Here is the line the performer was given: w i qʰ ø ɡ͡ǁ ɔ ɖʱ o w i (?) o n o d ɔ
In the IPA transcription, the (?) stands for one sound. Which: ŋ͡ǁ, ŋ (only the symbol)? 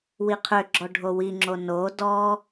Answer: ŋ͡ǁ